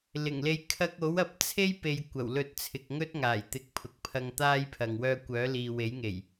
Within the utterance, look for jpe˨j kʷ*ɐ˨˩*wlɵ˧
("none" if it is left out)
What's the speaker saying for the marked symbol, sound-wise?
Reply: ɐ˨˩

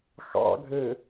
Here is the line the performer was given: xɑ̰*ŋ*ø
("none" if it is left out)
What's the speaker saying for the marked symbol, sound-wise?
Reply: ɡʱ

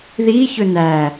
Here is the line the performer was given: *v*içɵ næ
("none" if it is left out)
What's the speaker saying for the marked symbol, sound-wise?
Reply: ð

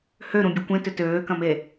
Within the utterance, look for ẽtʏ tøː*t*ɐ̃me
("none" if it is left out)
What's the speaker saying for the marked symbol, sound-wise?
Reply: k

